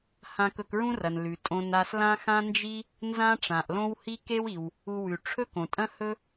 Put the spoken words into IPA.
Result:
h ã˧ k ɵ˧ k ɹ ũ˥ r ɐ˩ n l ʉ˩ tʼ õ˧ n a˧ s l ã˥ x ã˥ n d͡ʒ i˥ | n z ã˥ ʈ͡ʂ ã˩ ʔ l õ˥ w h i˥ k e˥ w i˩ w | u˧ w ʉ˩ ʈ͡ʂʰ ɵ˥ k õ˩ tʼ ɐ̃˥ h ɵ˥

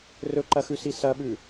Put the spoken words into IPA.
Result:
r ɵ ǃ ɐ x ʉ s i s ɐ ɓ ʉ

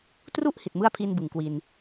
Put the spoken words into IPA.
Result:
t r u˥˩ ʔ h i˨˩ t̚ m ɯ˥˩ a̯ pʰ iː˧ n b ɯ˨˩ ŋ k w i˧ n

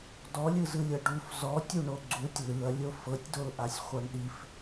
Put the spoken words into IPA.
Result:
d ɔ lʲ ɯ z ɯ lʲ ɤ ɖ u f z ɔ tʲ u ɳ o ɡ͡ǀ u tʲ l ɯ ɐ̯ lʲ o f ɤ tʲ d o l ʔ a sʲ χʷ ɤ ɳ ɗ i f

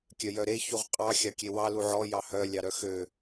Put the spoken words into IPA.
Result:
kʲ œ j œ ɾ e ç u ʁ qʼ ɑ xʲ ɑ kʲ e w ɑ l u ʕ ɔ j ɑ h œ lʲ ɑ ɾ œ x ø

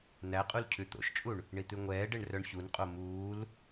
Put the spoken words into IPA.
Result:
n æ qʼ u l cʰ ʉ t̪ o̰ ʃ t͡ʃʼ u ɳ | ɳ i t̪ ʉ ŋʷ ɛː ɖ e ɳ r œ ɳ ç u n qʼ o m uː l

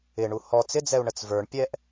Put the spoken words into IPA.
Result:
ɪ ɳ u h ɔ t͡s ɪ d͡z ɛ u̯ ɳ ə t͡s v ə˞ ɳ pʲ ɛ ʔ

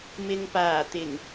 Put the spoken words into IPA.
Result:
m ɪ˨ ŋ p aː˨˩ t̪ ɪ˨˩ ŋ

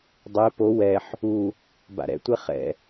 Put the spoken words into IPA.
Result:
dˤ e p o w ɛ ħ | u | b a̰ ɾ ɛ̰ tʷ ɛ χ ɛ̰

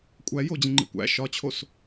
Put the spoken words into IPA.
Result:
kʷʼ æ j oː d͡ʑ ĩ ŋ͡ǃ ḭ kʷ æ̰ ʃ ɒ t͡ɕʰ o s

